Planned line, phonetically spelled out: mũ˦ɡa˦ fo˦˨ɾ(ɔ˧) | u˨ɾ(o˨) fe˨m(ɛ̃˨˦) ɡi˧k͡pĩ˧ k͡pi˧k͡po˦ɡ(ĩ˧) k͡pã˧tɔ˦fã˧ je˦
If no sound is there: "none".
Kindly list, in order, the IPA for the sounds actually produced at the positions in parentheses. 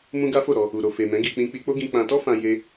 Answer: ɔ˧, o˨, ɛ̃˨˦, ĩ˧

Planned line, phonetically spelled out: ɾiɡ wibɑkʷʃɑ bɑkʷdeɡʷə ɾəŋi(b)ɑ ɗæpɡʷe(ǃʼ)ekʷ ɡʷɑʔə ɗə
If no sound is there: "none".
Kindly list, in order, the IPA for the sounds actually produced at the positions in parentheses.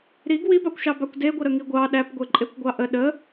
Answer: ɡʷ, ǃʼ

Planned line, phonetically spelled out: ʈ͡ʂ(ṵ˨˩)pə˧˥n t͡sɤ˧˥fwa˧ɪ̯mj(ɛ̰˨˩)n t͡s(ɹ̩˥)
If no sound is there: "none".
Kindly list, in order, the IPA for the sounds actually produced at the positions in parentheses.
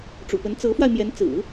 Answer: ṵ˨˩, ɛ˧˥, ɹ̩˨˩˦

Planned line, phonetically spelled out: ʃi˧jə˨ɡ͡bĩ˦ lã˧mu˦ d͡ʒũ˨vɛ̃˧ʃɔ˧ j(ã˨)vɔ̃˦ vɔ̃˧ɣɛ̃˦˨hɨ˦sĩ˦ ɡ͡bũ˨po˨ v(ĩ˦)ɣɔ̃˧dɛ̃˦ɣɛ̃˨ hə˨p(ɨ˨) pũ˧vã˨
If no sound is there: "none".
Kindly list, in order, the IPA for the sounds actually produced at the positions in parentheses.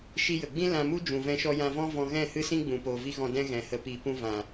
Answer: ã˧, i˦, i˨

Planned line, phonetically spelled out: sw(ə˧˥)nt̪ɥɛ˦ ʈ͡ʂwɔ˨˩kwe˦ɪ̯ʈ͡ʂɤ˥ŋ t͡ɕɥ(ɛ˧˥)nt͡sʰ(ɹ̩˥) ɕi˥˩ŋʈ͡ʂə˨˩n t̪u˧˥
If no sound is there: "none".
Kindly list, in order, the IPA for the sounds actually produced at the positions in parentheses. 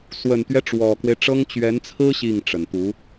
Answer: ə˨˩, ɛ˧˥, ɹ̩˥

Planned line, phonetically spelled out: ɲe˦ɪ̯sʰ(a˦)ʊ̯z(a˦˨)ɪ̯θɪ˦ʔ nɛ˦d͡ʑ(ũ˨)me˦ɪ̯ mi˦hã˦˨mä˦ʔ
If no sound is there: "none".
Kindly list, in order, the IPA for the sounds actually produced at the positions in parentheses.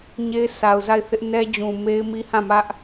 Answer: a˨, a˦˨, ũ˨

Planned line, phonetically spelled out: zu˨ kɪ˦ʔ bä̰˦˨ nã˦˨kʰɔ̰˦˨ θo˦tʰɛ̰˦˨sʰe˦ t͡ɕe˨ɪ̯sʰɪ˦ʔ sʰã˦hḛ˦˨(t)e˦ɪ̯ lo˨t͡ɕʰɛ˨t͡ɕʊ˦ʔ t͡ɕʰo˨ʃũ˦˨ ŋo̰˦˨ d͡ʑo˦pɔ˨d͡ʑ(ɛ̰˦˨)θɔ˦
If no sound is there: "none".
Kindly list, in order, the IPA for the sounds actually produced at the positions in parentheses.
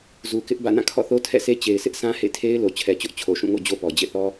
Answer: tʰ, ḛ˦˨

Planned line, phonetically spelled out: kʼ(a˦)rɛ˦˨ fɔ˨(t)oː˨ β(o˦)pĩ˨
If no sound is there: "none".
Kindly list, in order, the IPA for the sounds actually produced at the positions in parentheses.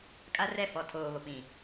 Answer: a˦, tʰ, o˨

